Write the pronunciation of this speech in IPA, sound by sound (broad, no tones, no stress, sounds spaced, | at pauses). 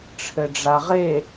ʈ͡ʂʰ ɘ ɖ͡ʐ a ʁ e